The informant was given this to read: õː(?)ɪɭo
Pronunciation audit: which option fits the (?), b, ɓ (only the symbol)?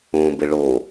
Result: b